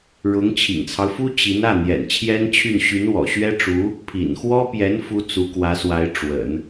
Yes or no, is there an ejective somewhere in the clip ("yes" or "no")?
no